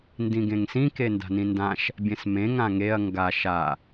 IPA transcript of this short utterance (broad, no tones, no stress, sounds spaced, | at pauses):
n d ĩ ɡ ẽ ŋ s ĩ k e n d a̤ n ĩ n d ã ʃ | bʲ ẽ s m ẽ ŋ ã ŋ e ɐ̯ ŋ ɡ a ʃ a